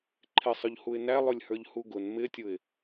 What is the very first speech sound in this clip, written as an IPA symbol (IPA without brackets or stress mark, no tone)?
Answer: ǃʰ